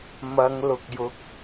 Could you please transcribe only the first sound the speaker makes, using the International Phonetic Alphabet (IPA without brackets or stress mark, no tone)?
m